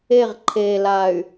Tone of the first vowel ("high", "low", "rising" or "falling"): falling